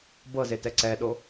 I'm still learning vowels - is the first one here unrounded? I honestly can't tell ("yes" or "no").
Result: yes